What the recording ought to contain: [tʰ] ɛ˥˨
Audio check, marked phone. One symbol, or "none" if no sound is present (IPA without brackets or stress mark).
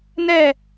n